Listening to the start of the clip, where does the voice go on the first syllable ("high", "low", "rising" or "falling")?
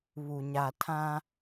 low